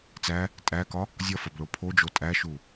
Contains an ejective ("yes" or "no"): yes